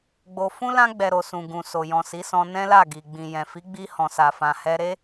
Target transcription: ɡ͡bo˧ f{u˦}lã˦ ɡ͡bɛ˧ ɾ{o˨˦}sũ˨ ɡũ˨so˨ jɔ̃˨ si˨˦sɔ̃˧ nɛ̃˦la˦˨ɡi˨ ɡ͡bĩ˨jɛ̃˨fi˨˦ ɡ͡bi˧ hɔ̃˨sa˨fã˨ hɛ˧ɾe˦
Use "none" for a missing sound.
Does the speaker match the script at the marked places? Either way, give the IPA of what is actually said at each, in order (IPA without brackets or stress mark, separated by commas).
ũ˦, o˨